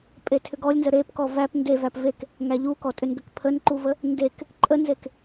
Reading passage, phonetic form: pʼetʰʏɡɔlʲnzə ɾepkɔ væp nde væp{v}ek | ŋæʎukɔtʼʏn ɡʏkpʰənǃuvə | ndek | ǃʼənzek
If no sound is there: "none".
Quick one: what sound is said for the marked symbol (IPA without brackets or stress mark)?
v